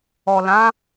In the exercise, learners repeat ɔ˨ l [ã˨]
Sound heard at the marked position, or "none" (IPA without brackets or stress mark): ã˨˦